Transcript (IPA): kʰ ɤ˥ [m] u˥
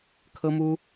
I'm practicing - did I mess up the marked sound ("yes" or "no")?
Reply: no